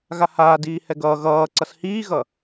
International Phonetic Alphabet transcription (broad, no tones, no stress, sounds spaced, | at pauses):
ɣ a h aː d iː h ɛ ɡ ʌː ɣ ʌː ǀ ʌ s h iː ɣ ʌ